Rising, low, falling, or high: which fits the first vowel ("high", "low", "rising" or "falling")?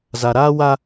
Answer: low